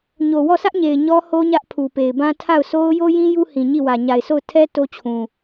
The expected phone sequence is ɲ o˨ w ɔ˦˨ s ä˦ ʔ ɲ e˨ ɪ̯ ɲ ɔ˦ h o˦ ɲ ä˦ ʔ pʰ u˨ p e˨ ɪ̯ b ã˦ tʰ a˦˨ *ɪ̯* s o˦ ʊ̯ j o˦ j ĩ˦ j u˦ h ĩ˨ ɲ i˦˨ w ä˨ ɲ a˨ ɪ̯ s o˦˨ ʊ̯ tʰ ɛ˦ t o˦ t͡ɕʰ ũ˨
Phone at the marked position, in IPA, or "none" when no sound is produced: ʊ̯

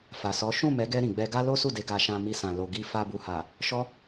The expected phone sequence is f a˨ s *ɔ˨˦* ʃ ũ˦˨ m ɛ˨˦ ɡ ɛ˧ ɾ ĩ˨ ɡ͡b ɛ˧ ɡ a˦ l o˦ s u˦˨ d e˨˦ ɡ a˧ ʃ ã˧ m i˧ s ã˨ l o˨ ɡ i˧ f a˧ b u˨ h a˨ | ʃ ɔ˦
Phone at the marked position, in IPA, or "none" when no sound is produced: ɔ˨˦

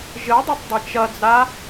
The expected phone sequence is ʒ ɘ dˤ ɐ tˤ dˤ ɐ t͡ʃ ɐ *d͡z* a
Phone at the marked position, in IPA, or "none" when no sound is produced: d͡z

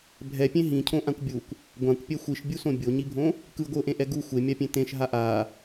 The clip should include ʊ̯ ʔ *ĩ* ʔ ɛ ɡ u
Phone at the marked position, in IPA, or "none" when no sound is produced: ẽ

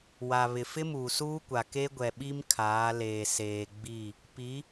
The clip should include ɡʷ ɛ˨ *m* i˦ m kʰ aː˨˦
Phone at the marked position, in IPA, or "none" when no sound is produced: ɓ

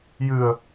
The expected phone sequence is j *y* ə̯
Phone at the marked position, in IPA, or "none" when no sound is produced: ɨ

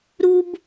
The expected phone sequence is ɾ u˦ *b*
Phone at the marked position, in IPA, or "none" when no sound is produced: b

